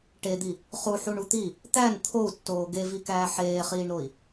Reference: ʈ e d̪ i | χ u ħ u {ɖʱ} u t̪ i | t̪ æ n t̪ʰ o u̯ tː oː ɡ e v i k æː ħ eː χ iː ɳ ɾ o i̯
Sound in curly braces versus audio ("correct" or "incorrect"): incorrect